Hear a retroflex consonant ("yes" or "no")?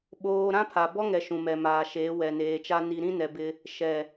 no